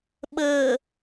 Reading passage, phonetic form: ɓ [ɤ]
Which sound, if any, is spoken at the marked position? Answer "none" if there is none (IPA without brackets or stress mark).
ɤ